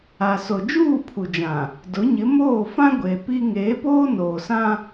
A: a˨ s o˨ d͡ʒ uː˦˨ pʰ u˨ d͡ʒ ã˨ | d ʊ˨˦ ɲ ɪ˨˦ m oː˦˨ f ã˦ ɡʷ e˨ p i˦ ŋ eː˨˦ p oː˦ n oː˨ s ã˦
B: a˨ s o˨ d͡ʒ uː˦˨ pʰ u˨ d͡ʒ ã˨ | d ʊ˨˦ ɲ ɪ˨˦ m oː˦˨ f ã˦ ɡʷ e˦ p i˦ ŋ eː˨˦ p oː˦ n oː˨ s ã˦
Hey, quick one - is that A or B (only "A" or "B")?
A